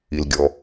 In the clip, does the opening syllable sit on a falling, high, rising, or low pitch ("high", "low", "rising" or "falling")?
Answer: low